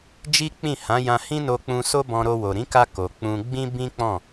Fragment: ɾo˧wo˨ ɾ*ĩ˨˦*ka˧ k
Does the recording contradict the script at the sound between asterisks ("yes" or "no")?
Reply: no